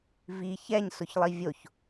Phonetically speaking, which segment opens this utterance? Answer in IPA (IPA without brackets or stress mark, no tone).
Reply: v